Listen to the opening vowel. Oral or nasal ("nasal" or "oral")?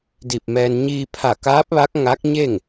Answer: oral